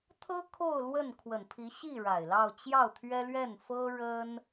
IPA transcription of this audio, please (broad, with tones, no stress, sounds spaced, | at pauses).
t̪ʰ ɤ˥ kʰ o˥˧ ʊ̯ l w ə˥˩ n kʰ w ə˨˩ n pʰ i˧˥ ɕ i˥˩ ɻ a˨˩ ɪ̯ l ɑ˥˧ ʊ̯ t͡ɕ j ɑ˥˩ ʊ̯ t̪ʰ ɥ ɛ˥ l ɥ ɛ˥˩ n f ɤ˥ ɻ ə˥ n